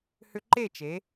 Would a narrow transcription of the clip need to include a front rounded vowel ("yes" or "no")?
yes